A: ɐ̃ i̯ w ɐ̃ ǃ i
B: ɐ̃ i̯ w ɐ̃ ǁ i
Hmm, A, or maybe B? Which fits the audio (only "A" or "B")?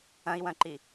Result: A